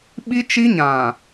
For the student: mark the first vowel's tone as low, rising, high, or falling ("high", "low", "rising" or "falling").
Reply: high